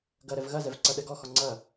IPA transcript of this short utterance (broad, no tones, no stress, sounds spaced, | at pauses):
ɡ ɐ ɾ ɛ v ɣ ɐ z ɛ v ǀ ɐ ɗ ɛ ɡ ɔ x ɔ ŋ͡ǀ ɐ